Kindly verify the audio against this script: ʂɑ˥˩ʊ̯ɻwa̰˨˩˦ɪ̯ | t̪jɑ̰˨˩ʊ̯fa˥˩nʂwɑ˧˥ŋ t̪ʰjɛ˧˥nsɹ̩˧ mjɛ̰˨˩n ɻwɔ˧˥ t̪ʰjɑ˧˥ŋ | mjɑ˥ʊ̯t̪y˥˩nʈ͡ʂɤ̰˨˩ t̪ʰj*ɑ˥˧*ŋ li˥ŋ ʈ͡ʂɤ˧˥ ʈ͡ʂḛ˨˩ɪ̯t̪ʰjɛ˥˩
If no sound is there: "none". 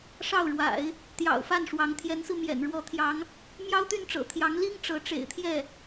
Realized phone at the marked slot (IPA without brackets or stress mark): ɑ˧˥